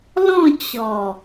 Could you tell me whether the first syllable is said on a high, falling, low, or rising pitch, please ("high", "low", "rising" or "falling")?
falling